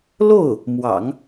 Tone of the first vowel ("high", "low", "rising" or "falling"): falling